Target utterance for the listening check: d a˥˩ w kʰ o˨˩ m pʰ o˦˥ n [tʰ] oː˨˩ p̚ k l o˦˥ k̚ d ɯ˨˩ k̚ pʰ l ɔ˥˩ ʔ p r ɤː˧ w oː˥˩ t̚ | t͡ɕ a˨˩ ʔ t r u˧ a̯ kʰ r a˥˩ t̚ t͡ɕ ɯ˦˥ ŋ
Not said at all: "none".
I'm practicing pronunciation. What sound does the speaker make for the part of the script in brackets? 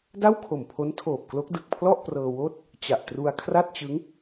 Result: tʰ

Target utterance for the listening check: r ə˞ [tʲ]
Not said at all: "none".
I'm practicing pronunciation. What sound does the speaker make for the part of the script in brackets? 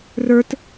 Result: t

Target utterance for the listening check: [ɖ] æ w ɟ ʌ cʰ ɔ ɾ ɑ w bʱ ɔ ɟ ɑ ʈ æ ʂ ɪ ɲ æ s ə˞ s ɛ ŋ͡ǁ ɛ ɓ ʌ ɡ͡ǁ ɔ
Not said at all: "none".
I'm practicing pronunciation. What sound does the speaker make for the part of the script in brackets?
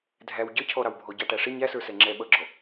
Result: dʱ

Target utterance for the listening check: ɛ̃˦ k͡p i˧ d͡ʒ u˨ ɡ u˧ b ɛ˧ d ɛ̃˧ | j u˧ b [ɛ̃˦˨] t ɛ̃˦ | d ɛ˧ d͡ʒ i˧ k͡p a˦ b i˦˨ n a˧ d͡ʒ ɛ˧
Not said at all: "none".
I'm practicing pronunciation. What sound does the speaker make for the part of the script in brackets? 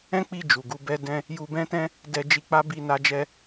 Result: ɛ̃˦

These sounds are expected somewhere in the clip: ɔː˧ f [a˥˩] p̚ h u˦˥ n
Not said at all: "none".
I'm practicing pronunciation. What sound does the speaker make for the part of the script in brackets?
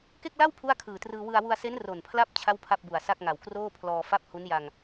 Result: a˥˩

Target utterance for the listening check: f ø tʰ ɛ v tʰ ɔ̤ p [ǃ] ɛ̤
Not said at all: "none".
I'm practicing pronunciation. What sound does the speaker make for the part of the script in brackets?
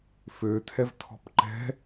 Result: ǃ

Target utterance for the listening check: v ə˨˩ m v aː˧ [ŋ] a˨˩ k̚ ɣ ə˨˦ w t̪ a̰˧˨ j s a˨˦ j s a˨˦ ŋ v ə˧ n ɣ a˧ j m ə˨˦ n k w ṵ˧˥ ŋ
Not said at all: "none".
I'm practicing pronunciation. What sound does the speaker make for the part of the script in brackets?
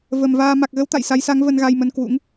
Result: m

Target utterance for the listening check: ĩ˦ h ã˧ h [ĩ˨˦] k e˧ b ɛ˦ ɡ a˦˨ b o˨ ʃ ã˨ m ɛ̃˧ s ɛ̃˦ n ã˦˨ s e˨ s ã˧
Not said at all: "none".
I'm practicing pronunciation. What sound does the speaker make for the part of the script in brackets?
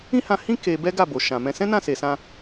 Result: ĩ˦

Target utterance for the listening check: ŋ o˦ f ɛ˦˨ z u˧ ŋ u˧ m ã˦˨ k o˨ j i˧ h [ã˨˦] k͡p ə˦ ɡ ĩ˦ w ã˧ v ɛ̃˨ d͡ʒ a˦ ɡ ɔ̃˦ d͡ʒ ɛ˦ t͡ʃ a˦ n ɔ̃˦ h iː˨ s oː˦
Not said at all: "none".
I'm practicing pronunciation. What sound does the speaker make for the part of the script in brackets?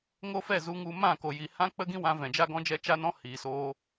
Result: ã˦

